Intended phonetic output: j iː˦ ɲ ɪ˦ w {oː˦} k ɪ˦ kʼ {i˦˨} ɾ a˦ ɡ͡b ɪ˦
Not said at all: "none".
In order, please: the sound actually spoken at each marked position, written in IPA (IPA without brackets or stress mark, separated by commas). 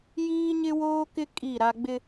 oː˦, i˦˨